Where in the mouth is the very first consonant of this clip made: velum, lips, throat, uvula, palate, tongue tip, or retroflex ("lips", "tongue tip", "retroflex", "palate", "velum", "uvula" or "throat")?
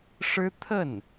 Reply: retroflex